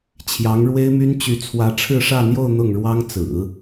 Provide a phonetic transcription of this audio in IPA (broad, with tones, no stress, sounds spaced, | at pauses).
t͡ɕʰ j ɑ˧˥ ŋ ɻ w e˥ ɪ̯ m y˥ n t͡ɕ y˧˥ t͡sʰ w ä˧˥ ʈ͡ʂʰ ɻ̩˥˧ ʂ ä˥˧ n̪ j o˥˧ ʊ̯ n̪ ʊ˥˩ ŋ ɻ w ɑ˥ ŋ t͡s ɹ̩˨˩˦